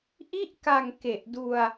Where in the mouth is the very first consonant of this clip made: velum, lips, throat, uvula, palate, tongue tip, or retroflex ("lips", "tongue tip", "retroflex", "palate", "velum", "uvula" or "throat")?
throat